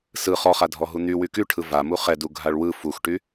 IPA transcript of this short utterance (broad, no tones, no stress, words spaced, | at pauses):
sɯ χɔχadʱɔɦu n̪y wykyʈʰɯ vamu χɛdu ɡʱaɭwɯ fuxʈy